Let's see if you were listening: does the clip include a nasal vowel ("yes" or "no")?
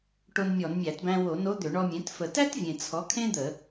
yes